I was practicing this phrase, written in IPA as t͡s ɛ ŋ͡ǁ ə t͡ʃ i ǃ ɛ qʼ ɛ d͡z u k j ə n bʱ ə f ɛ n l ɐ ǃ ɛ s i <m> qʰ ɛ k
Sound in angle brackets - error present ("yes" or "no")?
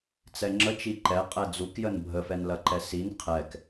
yes